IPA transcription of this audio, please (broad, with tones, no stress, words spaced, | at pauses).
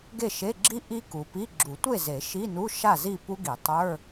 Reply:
ɡe˥˨ʃe˧˥˧ ɡ͡ǁi˦˥ ʔi˦˥ ku˩pi˧˥˧ ɡ͡ǁu˨˩˦tʷe˥˨ ze˨˩˦ ʃi˧˥˧nu˧˥˧ ʃa˥˨zi˥˨pu˦˥ɡi˨˩˦ tˤə˞˧˥˧